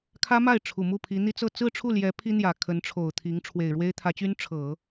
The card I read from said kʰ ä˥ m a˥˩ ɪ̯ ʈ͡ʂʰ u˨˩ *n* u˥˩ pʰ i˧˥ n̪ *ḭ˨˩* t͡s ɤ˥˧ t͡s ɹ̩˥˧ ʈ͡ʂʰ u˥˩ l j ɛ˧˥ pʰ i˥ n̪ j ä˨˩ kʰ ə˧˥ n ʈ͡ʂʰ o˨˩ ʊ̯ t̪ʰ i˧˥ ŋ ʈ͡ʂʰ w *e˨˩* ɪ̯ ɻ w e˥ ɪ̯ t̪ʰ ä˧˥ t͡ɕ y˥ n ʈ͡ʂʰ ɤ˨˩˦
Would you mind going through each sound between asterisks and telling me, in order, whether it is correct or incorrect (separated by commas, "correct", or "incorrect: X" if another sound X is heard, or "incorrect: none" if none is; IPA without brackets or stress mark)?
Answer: incorrect: m, incorrect: i˥, correct